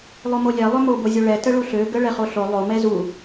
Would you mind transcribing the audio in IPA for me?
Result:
lˠ o m o lʲ ɛ lˠ ø m o b o zʲ o ɭ ɛ t ə ɭ u ɬ ø ɡ ə ɭ ɛ χ o ɬ o lˠ o m ɛ z u

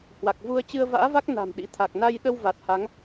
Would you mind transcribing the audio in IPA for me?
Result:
h w a˨˩ k̚ v u˧ ə̯ t͡ɕ ɨ˧ ə̯ v a̰ː˧˥ v a˦˥ k̚ n a̤˨˩ m ɗ ḭ˧˥ t̪ʰ a˨˩ k̚ n a˧ j ɗ ə˧ w v a˨˩ t̚ h a˨˦ ŋ

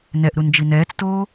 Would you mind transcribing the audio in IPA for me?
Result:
n ɛ ʔ ɾ u n d͡ʒ i n ɛː t͡s t oː

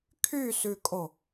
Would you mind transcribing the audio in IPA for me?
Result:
kʰ y s ʉ kʼ o

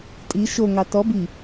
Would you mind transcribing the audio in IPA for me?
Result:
tʼ i ʃ o ŋ ɑ t ɔ b i

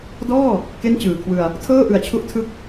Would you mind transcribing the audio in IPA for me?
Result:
d ɔː˥˩ | k e˥˩ n t͡ɕ ɯː˨˩ kʰ w ɯ˧ a̯ | tʰ ɤː˥˩ ʔ ɯ˨˩ a̯ t͡ɕʰ u˦˥ ʔ tʰ ɯ˥˩ k̚

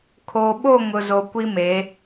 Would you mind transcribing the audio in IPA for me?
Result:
kʰ oː˨ ɓ o˦˨ ŋ ʊ˨ z o˨ kʷ i˦ m e˨˦

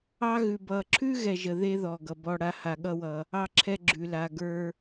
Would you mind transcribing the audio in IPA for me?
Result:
ɑ˥ ɣ ʉ˨ b ʌ˨ ǁʰ ʉ˥ ɣ ɛ˨ ʒ ə˨ ð e˥ ð ɔ˩ ɡ ʌ˩ b ɔ˦ ɽ a˦ h a˨ ɠ ʌ˦ w ʌ˨ | ɑ˦ ǁʰ ɛ˦ ɡ͡ǁ ʉ˨ l a˨ ɡ ə˞˦

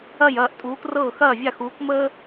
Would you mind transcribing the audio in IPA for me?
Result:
ɐ˥˨ j ɐː˥˨ ʔ tʼ uː˨˦ k r ɤː˥˨ x ɐː˥˨ vʲ a˥˨ x uː˨˦ k m əː˥

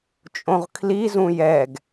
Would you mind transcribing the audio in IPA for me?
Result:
t͡ʃʼ õ ʁ kʰ l i z ũ j ɛ ɡ

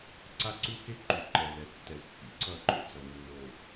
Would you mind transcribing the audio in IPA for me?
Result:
ǀ a˦ ǀ u˦ k e˦ ǃ u˨ ǃ ɛ˨ l ɛ˨ tː ɛ˨ l kː ḭ˨ ǀ ʌ˦˨ ǃ o̰˨ t͡s ʌ˨ nː o˨

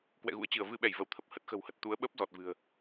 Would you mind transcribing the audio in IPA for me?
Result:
k w ɛ̰˧˨ ɣ ṵ˧˥ ə̯ t͡ɕ ɨ˧˩ ə̯ v ɨ˧ ɓ ɛ˧˩ j v ə˧˩ w t̪ʰ ə˨˩ p̚ h ə˦˥ t̚ x ə̤˨˩ w h ə˨˩ t̚ t̪ u˨˦ ə̯ ɓ əː˦˥ p̚ z ɔ˨˩ t̚ v ɨ̤˨˩ ə̯

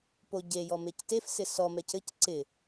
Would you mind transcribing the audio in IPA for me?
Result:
p o ɟ e j ɔ m e c t e f s ɪ s ɔ m ɛ c ɘ c ǀ ɪ

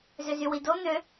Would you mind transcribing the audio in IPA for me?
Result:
z ø z y w i d o n̪ ø

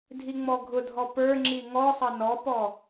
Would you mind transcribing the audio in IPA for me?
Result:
dʱ i ŋ͡m ɔ ɡʱ ʊ dʱ ɔ p ə˞ ŋ͡ǁ i ŋ ɔ sˤ ʌ n ɔ p ɔ

